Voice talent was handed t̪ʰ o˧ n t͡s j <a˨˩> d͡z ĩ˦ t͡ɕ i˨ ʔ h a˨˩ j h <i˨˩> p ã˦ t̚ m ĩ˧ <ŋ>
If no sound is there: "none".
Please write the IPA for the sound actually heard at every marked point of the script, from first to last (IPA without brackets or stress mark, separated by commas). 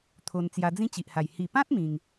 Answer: a˧, i˨˩, ŋ